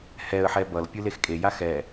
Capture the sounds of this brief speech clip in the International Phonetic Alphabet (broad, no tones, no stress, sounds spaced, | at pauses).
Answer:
h ɛ ə̯ ħ ɛ b ʌ l pʲ ɯ l e x kʼ e j a x ɛ